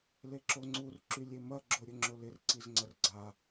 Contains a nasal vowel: no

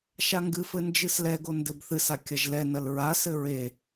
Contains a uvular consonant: no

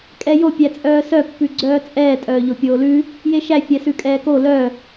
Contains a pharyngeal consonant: no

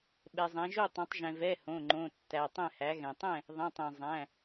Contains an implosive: yes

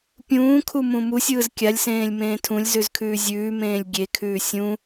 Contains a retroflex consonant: no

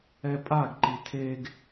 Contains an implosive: no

